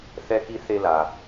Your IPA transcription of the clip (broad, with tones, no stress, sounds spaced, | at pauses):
θ ɛ˥ k i˥ θ e˦ l a˩